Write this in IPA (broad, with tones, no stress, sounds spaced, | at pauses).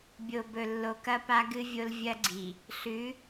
bʲ o˨ b ɵ˨ lː o˨ k ɐ˦ p a˦ ɡ ɨ˦ vʲ o˦ l vʲ ɐ˦ ɡ͡ǀ i˨ | ɬ ʉ˨˦